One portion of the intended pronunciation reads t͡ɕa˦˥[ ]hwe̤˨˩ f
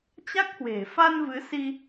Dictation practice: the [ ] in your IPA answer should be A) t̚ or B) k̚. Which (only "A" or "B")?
B